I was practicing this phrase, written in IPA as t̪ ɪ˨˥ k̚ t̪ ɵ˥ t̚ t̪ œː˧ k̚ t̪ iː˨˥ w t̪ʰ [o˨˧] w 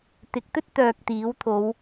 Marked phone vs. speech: correct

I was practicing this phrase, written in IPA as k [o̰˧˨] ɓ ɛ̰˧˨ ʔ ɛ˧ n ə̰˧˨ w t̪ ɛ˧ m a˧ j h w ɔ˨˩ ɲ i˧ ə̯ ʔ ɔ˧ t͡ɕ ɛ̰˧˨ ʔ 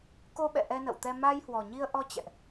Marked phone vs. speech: incorrect: o˧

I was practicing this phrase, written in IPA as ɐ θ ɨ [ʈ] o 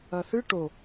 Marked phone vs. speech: correct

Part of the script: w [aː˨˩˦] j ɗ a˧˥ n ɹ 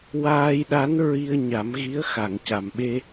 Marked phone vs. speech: incorrect: aː˧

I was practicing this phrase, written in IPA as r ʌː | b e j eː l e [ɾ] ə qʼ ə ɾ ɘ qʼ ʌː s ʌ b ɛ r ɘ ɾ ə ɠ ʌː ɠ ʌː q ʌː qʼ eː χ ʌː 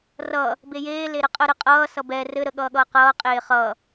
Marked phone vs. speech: correct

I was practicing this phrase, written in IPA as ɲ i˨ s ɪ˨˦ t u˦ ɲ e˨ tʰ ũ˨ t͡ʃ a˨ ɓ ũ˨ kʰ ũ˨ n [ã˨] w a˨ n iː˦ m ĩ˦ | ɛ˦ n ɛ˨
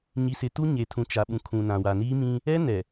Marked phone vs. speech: correct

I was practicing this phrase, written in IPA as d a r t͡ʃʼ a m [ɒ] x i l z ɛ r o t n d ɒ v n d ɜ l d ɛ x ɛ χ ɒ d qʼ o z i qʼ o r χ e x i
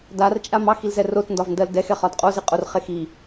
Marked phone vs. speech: incorrect: ɑ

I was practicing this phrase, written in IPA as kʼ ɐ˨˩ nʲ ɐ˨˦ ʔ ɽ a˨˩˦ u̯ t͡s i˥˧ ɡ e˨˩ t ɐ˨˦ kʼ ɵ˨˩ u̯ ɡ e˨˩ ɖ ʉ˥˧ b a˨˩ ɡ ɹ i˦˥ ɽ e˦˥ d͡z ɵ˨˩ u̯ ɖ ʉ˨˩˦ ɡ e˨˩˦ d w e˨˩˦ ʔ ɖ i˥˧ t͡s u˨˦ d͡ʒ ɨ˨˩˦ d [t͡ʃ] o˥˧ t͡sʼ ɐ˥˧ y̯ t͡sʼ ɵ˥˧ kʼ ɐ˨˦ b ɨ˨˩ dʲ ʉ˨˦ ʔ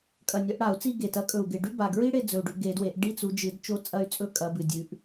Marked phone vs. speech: correct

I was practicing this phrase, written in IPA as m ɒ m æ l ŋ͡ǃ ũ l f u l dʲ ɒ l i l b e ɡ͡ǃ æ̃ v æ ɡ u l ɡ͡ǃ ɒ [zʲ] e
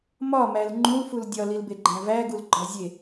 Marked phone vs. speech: correct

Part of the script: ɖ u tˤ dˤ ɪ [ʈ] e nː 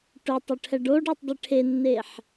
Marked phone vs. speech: incorrect: ʈʰ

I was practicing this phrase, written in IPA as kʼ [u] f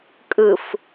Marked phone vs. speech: incorrect: ɯ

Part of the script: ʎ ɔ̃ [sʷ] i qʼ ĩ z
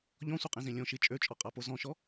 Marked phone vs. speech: correct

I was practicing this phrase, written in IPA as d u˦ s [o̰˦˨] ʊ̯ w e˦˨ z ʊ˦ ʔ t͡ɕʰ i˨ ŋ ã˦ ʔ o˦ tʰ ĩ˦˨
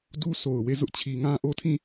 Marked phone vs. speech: incorrect: o˨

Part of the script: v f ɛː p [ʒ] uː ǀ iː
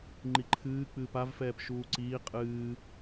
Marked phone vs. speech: incorrect: ʃ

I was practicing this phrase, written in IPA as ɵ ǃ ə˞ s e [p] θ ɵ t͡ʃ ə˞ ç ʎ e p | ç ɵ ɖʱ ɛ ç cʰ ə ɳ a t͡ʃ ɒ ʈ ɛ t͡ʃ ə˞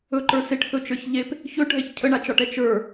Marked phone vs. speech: incorrect: ʈ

